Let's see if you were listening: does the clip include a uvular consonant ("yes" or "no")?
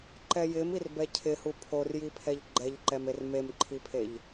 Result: no